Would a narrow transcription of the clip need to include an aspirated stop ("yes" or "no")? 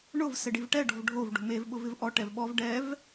no